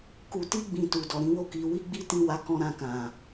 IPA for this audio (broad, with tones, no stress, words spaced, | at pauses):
ku˨ti˧ɡ͡bĩ˨ tu˨dɔ˨ɾĩ˨˦wo˦˨ ki˧ wi˦ɡ͡bi˦tĩ˦˨wa˨˦ kɔ̃˧ ɾã˧kã˨